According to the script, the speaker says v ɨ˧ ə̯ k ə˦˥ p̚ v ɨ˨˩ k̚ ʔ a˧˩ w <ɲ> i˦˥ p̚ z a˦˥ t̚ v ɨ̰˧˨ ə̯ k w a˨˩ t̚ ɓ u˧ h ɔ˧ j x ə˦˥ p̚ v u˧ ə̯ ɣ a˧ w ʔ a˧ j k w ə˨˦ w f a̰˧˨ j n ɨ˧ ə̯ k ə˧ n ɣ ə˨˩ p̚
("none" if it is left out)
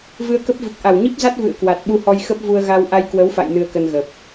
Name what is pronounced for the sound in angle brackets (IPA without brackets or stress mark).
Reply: ɲ